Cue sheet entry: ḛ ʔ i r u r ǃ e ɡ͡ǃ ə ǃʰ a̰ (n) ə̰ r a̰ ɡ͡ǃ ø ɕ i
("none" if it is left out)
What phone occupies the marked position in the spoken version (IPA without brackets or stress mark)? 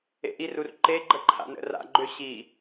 n